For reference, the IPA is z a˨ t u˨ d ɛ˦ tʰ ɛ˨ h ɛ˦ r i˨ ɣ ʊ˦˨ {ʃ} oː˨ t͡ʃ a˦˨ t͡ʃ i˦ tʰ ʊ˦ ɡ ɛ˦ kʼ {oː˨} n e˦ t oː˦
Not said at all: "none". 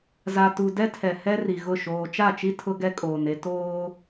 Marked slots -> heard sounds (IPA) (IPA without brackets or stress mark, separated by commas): ʃ, oː˨